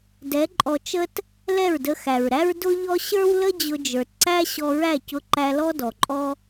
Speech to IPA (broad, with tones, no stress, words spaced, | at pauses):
dɛ˨˦ǃʼɔ˧ t͡ʃə˦t | lɛ˦˨ɹdə˧xæ˨ɹɾæ˦ɹ dʊ˦ʎɔ˦ ɕə˞˦wlə˦ d͡ʑʊ˧d͡ʒə˞˨tǀæ˦ ɕɔ˧ɹæ˦˨cʊ˧ ǃæ˧lɔ˦dɔ˨ǃʼɔ˦